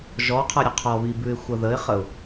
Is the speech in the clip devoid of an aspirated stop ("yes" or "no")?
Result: no